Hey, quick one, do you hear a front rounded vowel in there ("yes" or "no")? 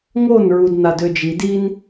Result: yes